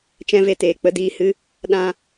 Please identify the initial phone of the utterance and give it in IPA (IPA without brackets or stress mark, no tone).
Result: t͡ʃ